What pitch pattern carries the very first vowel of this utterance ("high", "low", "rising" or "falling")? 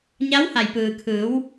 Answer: rising